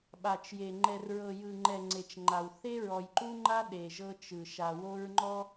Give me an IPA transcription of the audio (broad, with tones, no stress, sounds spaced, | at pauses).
ɓ a˨ t͡ʃ j e˨ ŋ͡ǃ ɛ˨ r ɹ ɤ˨ j ɯ˨ ŋ͡ǃ ɛ˨ ŋ͡ǀ e˨ t͡ʃ ŋ͡ǃ a˨ w θ e˦ ɹ ɔ˨ j ǃ u˦ ŋ͡ǃ a˦ ɗ e˨ ʒ ɤ˦ t͡ʃ ɯ˨ ʃ a˨ w o˦ ɹ ŋ͡ǃ ɔ˦